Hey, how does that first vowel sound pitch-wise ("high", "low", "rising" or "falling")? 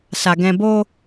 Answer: low